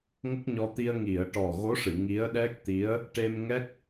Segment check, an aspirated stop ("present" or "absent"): absent